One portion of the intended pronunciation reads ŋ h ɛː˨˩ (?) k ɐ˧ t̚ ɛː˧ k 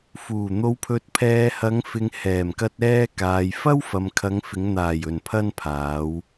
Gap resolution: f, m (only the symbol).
m